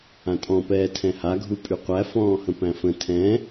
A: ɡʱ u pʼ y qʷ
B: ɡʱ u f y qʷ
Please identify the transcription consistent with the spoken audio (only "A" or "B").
A